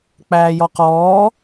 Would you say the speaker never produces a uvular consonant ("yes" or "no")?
no